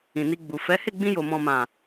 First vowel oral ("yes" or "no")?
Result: no